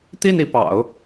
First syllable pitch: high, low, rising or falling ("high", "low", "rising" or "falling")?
falling